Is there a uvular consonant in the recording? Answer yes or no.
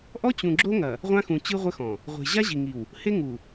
yes